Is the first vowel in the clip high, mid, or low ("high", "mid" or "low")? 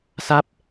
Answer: low